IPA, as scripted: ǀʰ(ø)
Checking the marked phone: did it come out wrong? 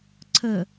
yes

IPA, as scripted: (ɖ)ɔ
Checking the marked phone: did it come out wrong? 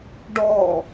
no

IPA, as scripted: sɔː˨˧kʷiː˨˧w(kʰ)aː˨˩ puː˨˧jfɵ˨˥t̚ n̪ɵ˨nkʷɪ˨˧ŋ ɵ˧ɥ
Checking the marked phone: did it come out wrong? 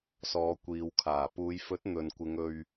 no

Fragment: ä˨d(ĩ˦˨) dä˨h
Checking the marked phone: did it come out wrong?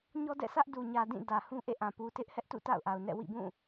no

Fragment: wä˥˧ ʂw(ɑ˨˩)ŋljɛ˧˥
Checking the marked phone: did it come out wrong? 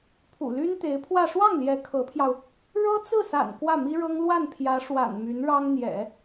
yes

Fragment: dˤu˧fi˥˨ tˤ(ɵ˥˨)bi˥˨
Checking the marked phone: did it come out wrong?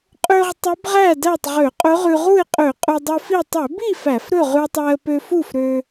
yes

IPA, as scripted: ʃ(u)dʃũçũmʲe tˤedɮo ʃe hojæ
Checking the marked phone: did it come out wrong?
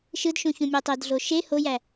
yes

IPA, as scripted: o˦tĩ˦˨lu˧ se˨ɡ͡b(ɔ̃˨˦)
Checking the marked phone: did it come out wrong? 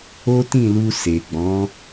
no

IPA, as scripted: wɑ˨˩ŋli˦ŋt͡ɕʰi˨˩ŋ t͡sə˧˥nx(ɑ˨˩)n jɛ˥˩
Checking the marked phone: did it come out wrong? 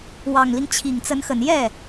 yes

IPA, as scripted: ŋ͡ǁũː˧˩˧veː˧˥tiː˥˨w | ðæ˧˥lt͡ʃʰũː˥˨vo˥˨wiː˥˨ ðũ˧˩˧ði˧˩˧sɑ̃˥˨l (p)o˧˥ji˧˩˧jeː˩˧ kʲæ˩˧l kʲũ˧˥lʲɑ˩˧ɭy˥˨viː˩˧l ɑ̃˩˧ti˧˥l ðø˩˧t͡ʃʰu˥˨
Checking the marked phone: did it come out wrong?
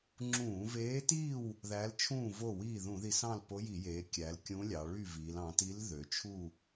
no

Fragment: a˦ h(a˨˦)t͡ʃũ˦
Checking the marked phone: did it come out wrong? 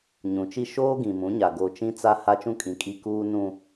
yes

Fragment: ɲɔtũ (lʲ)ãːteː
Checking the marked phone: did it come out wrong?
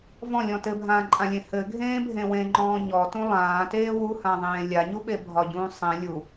yes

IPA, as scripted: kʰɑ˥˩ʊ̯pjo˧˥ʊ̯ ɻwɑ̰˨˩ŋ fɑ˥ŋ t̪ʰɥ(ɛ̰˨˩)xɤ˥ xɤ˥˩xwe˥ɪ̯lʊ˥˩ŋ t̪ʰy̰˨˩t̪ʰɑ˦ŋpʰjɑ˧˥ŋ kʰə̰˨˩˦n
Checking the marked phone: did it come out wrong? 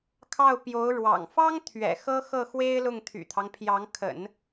no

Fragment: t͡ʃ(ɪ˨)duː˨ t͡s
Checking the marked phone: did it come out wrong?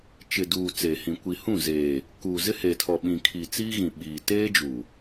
no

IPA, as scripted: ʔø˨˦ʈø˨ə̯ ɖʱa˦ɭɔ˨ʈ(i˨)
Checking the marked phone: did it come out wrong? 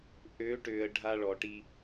yes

